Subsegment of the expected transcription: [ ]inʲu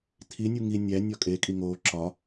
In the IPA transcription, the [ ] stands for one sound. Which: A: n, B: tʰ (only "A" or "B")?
B